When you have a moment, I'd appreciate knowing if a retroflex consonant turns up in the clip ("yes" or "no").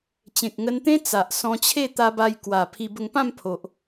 no